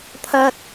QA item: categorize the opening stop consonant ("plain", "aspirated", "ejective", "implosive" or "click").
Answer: aspirated